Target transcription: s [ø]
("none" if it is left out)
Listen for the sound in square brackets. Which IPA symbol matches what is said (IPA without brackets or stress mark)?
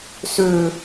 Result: ø